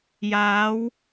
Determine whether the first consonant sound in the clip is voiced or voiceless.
voiced